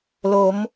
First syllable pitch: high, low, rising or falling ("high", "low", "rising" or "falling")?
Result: rising